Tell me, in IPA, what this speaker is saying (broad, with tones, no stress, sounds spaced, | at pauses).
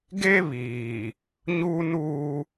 ɡ e˦ β iː˨ | ɲ uː˦ n uː˦